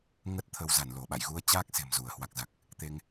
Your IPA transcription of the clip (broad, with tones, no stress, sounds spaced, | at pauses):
ŋ ə˦˥ t̚ t̪ʰ ə˧ w z a˧˩ n l o˧˩ ɓ a̰˧˨ j ɣ u˧ ə̯ t͡ɕ aː˦˥ k̚ s e̤˨˩ m z u˧˩ ə̯ h w a˨˩ k̚ z a˨˩ k̚ | t̪ e˧ ŋ